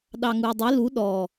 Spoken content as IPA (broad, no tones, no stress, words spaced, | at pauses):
ɗɑŋuə̯dˤe lu ɗɔ